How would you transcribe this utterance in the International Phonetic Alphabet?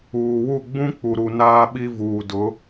uː˨wu˦˨ ɡ͡bũ˦k͡pu˨ɾu˨ naː˦ɓi˦vuː˨ dʊ˨˦

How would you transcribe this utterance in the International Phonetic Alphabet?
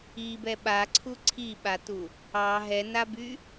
ibɛ ɓaǀʰu ǀʰiɓatu | ɑ ɦɛnaby

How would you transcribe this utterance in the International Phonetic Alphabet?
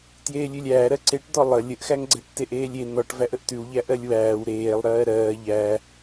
tjeːlʲʉlʲæːɾɜ ǀeʈd̪ɔ lˠə lʲəʔxæŋɡ͡ǀɛʈ teʔeːlʲe n̪ɔʈ væʔəʔtʉwʎæ ʔɜlʲwæːw ɾeːlˠ ɾɜːɾɜː ʎæ

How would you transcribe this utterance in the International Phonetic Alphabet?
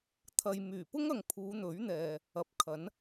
t̪ʰɐ˨j myː˨˩pʊ˥ŋɐ˨ŋ pʰuː˨˧n̪ɵ˨˥ɥ n̪ɛː˨ | ɐ˨p̚kʰɐ˨˥n

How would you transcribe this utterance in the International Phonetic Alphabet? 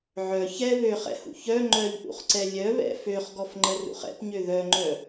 ʕœ çɛ βøχɛ̰hṵ çœ ŋ͡ǃœʎʔṵχǀɛ lʲœβɛ̰ føχɡɔfŋ͡ǃərṵχ ɛ̰pɲø ðœŋ͡ǃœ

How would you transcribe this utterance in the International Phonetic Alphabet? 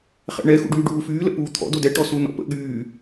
χɛ̰ɳɛ xṵɖyːɖuːfyː lə̰puːt̪ʰɔ̰ dodɛ ʈɔsunɔ̰pə̰ ɠyː

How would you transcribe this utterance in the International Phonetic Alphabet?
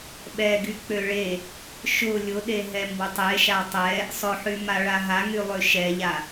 ɓɛɡy k͡pøɭe | ʃʊ lʲʊɗeɦɛ mbʊtˤeʃa tˤɛ | sˤʊħymaɭa ɦaŋylˠø ʃɛʎa

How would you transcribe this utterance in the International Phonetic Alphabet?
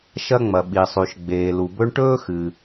ʃɐ˧ŋ͡mɐ˩ɓi˩sˤʉ˩ʃ ɡ͡beː˩lu˩bɵ˧ɳ ʈɵː˥xɨ˩

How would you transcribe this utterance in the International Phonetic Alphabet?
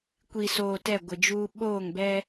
kʷi˨soː˨ tɛ˦˨ɡʷɪ˨d͡ʒuː˦ ɓoː˦˨ŋbɛ˦

